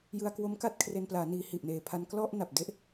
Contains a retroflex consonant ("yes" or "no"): no